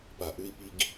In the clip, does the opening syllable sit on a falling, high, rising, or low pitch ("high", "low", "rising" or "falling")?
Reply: low